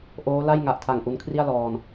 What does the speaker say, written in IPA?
ʔ oː˦˥ l a˥˩ j ŋ a˨˩ ʔ tʰ a˨˩ ŋ ʔ u˧ n kʰ r i˥˩ a̯ l ɔː˧ n

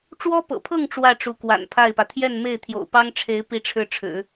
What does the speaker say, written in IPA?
ʈ͡ʂ w ɔ˥ p ɤ̰˨˩ pʰ ɤ˥˧ ŋ ʈ͡ʂ w ä˥˩ ʈ͡ʂ u˧˥ k w a̰˨˩ n pʰ a˥˩ ɪ̯ p ä˩ t̪ʰ j ɛ˥˧ n m e˥˩ ɪ̯ t̪ʰ j o̰˨˩ ʊ̯ p ɑ˥ ŋ ʈ͡ʂʰ e˧˥ ɪ̯ p i˧˥ ʈ͡ʂʰ ɻ̩˥˩ ʈ͡ʂʰ ɻ̩˨˩˦

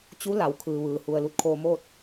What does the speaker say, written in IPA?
t͡ɕ u˧˥ l a˩ w kʰ ɯː˩ ʋ ɯː˩ h u˩ ə̯ l u˧ t̚ kʰ oː˧ m oː˥˨ t̚

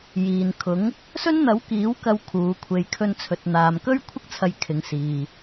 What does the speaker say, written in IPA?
j iː˨ n kʰ ʊ˨˥ ŋ | s ɵ˥ n n̪ ɐ˨˥ w k iː˨˥ w k ɐ˧ w kʰ uː˨˧ kʷʰ e˧ j kʰ ɵ˧ n t͡sʰ ɵ˨ t̚ n̪ aː˨ m k ɵ˥ ɥ kʷʰ ɪ˥ k̚ t͡sʰ ɐ˧ j kʰ ɪ˨ ŋ s iː˨

